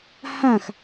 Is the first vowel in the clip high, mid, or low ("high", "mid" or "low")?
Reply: low